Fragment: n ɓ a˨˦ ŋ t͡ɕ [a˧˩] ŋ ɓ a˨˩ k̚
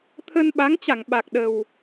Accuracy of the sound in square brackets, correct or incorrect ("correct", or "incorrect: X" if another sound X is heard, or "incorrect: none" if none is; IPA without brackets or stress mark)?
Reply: correct